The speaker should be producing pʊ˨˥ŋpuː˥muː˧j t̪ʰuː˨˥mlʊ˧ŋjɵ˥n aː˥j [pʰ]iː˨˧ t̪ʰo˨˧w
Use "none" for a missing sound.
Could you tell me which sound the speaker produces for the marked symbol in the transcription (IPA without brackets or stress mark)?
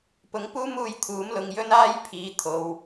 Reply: pʰ